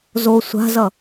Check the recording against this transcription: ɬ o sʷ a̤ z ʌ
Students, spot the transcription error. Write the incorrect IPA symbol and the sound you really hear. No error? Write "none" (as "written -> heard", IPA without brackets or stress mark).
ɬ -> z